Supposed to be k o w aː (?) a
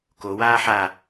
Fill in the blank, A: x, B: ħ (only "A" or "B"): B